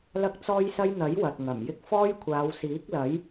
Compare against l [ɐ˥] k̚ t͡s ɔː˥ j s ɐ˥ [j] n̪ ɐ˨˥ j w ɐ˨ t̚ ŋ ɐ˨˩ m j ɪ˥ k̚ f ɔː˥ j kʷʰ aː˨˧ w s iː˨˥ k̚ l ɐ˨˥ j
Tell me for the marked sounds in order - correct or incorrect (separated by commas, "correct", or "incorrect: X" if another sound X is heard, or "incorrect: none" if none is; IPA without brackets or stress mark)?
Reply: correct, correct